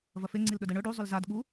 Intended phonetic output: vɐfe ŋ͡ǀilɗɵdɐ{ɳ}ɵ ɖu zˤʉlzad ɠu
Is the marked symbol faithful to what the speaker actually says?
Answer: yes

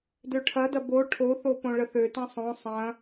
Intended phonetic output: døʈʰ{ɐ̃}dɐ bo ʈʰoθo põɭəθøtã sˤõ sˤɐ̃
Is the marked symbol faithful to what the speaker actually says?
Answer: no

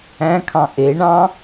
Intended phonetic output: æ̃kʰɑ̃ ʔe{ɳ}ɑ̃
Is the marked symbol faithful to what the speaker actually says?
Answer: yes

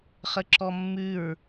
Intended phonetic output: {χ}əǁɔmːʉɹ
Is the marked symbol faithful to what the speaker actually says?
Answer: yes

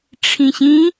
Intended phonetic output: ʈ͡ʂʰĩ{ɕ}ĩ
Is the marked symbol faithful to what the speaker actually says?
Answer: yes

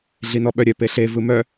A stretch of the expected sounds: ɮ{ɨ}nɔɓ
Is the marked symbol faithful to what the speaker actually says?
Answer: no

